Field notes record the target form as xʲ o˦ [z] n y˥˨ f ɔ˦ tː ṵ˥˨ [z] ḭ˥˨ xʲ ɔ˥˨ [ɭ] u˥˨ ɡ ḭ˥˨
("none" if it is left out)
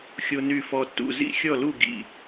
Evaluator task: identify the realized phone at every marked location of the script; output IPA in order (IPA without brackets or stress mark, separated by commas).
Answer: none, z, l